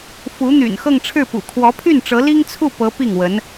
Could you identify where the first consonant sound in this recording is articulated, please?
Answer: labial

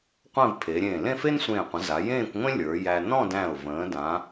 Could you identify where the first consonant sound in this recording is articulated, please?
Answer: uvular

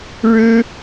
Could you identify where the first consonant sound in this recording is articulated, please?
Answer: retroflex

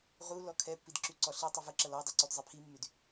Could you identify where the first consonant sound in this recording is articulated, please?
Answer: uvular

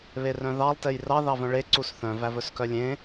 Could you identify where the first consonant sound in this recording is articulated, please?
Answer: labial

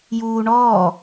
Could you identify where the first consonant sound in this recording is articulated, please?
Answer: palatal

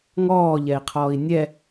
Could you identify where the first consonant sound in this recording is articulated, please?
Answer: velar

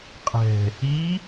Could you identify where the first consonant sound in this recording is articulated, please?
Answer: uvular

